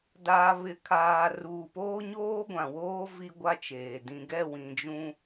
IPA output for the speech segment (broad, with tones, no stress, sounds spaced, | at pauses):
d aː˨ β ɪ˨ kʰ aː˨ r uː˨ p oː˦ ɲ oː˦ ɡʷ ã˨ w oː˦ v i˦ ɡʷ a˦ t͡ʃ eː˨ d ĩ˨ ɡ ɛ˦˨ w ĩ˨ d͡ʒ ũ˦